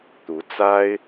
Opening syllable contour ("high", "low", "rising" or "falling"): rising